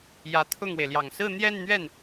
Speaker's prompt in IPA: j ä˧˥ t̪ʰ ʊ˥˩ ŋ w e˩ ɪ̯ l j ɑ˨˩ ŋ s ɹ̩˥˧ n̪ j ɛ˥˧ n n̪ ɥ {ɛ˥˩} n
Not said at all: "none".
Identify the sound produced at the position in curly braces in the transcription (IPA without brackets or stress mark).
ɛ˥˩